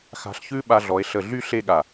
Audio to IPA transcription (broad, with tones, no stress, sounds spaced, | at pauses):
x a̤˧ ɬ ç ʉ˥ ɓ a˧ ɮ ɔ˩˧ e̯ ɬ ə˧˩ ɮ y˥˧ ɬ e˥˧ ɠ a˧˩